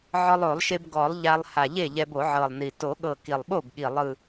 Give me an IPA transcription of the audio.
ʕ ɔ˧ lˠ o˨˩˦ lˠ ʃ e˧ b ɡ ɔ˨˩˦ lˠ ʎ a˧ lˠ h a˨˩ ʎ e˥˩ ʎ ɛ˧ b o˨˩˦ ʕ ɤ˨˩ lˠ n i˨˩ t o˨˩˦ ɠ ɤ˨˩ k i˨˩ lˠ ɓ o˥˩ b ɠ i˨˩ lˠ ɯ˨˩

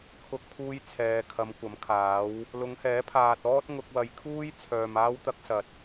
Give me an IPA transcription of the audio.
kʰ ʊ˧ k̚ pʰ uː˧ j t͡sʰ ɛː˨ kʰ ɐ˨˧ m kʷ ɐ˨˥ m kʰ aː˨˥ w | l ʊ˨˧ ŋ h ɛː˨˥ pʰ aː˨ t̚ ɔː˥ t̚ ŋ ʊ˧ k̚ w ɐ˨˧ j kʰ uː˥ j t͡sʰ œː˨ m aː˥ w t̪ ɐ˥ k̚ s ɐ˨ t̚

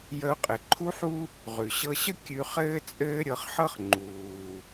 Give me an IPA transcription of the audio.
j ə˧ ʊ̯ qʼ ɘ˩ ǃʰ u˥ ħ u˥ | ʁ ʉ˩ ɕ ɤ˧ ɕ ə˥ kʲ ʉ˧ χ ɘː˥ t͡sʼ ɘː˥ ɾʲ ɤ˧ χ ħ ɤ˥ χ ŋ͡ǃ uː˩

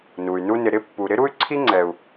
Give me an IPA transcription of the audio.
n u˨ y̯ n u˦ n ɪ˨ ɾ ɪ˦ pː u˨ ɾ ɪ˥ ɾ u˥ y̯ ǀʰ i˥ ŋ͡ǀ ɛ˨ u̯

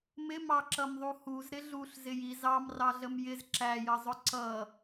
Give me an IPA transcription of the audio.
m ɪ m ɑ ǁ ʌ m ðˤ u h u z ɾ ɪ ɮ u ɬ z ɪ j i z ɑ m r ɑ ɮ ə m j ɪ z ǁ æ j ʌ zˤ ʊ ǀ ʌ

